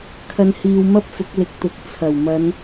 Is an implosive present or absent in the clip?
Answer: absent